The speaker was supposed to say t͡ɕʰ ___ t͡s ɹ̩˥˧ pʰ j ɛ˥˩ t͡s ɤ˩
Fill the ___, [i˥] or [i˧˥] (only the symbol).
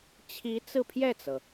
i˧˥